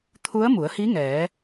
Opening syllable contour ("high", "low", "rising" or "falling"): rising